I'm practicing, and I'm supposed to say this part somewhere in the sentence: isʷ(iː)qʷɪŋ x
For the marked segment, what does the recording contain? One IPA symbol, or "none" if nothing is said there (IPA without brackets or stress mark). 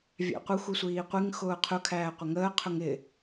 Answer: iː